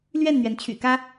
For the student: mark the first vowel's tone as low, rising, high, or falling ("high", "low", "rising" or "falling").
falling